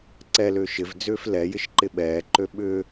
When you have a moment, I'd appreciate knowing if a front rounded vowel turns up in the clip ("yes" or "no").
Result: yes